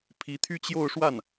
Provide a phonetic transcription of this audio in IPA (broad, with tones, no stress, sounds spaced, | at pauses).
pʰ i˧˥ t̪ʰ y˥ t͡ɕ j o˥˧ ʊ̯ ʂ w a˥˩ n